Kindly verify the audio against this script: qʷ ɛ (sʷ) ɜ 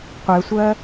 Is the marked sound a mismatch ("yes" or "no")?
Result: no